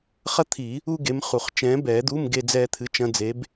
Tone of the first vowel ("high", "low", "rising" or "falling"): high